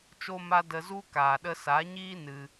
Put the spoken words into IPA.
t͡ʃo˦ ma˦ də˧zu˦ kaː˨ɗə˧sa˨˦ɲiː˦ nɨ˧

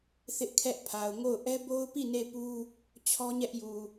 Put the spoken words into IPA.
θɪ˦ʔkʰɛ˦ʔpʰa˨ʊ̯ ŋo˦˨ʊ̯ ʔɛ˦bo˦ʊ̯pi˦˨ ne˦˨pu˦ | t͡ɕʰɔ˦ɲɛ˦ʔju˨

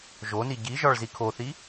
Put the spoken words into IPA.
ʒoni ɟiʒɒɭ zikʰoθi

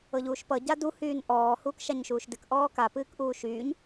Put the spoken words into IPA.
ɤʎuːʃpʌ ɟadu hyːnʔɔː huːkʃaɲʃuːʃdɨk ʔɔːka pɨːkʔuːʃyːɲ

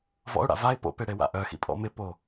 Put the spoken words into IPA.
vɔ̰ʊ̯ɽa̰ vaɪ̯ po̰pe ɽewa̰ʔœxḭ pʼɔ̰mɪpo

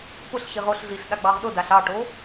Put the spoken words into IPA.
pʊɬɕiʁ oɬɮiɬ ɗaɡ͡bɑʁɗʊdaɬ ɑʈo

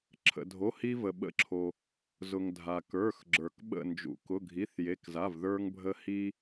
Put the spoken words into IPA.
ǁʰə̰˩dʱo˩˧˩ hi˧və˩ ɓə̰˧˩ǁʰo˩ | zʊ˩ŋ dʱa˩kə˞˩˧˩xɡ͡ǁə˞˩k ɓə̰˧˩nd͡ʒṵ˩ kʊ˩˧˩ɡʱi˩˧˩θje˩˧˩kza˩˧˩v ðə˞˧ŋbʱə˧ hi˧

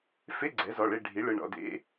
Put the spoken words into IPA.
fe˧˥˧ɡ͡ǀɛ˩˥zɔ˩˧˩ɭe˦˨ ɖʱi˩˥ɭɯ˩˧˩ɳɔ̰˦˨dḛ˧˥˧

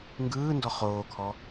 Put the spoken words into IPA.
ŋɡɯːndɔ χoːkʰɔ

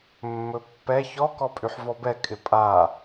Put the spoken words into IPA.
mːɵpːɛ çɔ kɔpʼyħvɔbɛ kʼɪpʼa

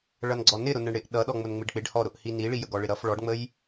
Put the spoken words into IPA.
ɭʌnɡ͡ǀɔnɪ ɾʊnəɳɽɪʔ ɗʌɗɔŋ͡mʊnŋ͡mɪɖ k͡pɪɖhɔɾʊʔhi niɭijəɡ ɔɭɪɾʌf ɭɔɖŋ͡məj

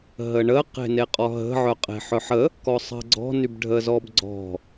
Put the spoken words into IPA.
ɦəɳə qe̤neqʼɔɦə̤ ʕœqʼe̤ħœħə | kɔsˤə̤ɡ͡ǀɔ̤ nybɖʱəzɔbɡ͡ǀɔ̤

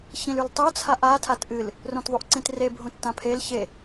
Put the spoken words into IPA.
çĩlʉltˤo t͡sʰaʔa tʰatʔɨl | rõtðˤuʔǀĩtre bʱũtːãpʰel çe

